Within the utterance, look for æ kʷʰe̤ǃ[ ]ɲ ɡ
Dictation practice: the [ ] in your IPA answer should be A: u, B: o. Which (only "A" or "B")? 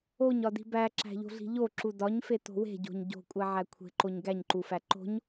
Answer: B